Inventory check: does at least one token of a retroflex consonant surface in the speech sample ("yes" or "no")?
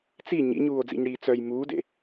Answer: yes